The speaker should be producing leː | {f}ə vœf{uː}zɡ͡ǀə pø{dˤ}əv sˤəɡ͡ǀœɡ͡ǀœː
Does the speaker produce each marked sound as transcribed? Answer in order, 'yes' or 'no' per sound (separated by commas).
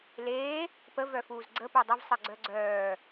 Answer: no, yes, yes